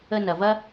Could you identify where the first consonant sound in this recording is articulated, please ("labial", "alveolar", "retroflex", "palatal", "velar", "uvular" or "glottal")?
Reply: alveolar